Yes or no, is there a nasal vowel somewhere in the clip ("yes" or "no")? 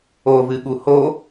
no